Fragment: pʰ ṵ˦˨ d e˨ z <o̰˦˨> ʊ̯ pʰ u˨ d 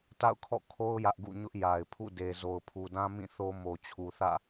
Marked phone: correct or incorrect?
incorrect